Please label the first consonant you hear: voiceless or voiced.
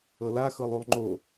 voiced